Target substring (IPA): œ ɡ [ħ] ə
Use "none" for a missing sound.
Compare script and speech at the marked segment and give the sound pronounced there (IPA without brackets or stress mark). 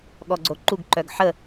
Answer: ħ